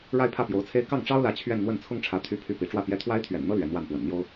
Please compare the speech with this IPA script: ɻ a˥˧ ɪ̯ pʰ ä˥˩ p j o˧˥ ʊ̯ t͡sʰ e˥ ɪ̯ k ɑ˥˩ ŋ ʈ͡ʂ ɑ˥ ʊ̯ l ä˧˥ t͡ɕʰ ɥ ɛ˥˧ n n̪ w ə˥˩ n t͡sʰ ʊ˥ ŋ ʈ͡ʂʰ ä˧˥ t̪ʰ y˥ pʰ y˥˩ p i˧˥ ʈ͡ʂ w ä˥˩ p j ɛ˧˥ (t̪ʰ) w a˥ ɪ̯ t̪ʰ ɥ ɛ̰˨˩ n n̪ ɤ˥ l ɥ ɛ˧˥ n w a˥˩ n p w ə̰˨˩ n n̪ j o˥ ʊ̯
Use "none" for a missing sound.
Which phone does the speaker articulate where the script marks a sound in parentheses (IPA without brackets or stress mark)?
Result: t̪ʰ